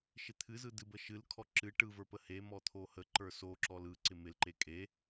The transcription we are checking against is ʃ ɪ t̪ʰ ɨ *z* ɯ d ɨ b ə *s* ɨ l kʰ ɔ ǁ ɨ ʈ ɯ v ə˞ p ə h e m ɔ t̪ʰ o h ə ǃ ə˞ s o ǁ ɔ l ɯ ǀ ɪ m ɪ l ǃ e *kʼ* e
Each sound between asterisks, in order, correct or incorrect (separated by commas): correct, incorrect, correct